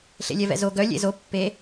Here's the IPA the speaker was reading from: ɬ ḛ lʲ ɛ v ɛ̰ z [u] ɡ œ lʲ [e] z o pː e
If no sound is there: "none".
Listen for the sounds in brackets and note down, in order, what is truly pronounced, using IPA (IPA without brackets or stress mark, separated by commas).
o, ḛ